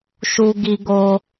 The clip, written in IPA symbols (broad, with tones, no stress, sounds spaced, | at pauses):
ʃ u˧ ɡ i˧ ɡ o˧